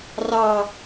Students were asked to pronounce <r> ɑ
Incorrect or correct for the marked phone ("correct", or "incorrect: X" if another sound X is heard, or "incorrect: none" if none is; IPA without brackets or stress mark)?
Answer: correct